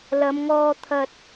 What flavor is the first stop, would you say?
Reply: aspirated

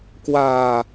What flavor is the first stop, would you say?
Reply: plain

